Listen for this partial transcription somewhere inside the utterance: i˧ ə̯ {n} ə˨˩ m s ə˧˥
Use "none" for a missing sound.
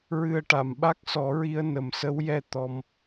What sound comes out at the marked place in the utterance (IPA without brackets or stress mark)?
n